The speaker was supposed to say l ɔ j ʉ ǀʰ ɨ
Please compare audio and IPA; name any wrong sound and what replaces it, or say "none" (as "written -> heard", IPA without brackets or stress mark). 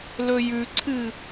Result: ɔ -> ɵ